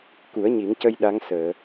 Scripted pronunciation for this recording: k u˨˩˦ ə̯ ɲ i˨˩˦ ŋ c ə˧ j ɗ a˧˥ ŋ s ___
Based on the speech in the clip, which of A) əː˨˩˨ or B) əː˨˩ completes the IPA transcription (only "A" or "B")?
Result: A